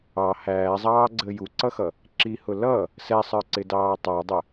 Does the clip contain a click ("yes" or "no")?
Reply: yes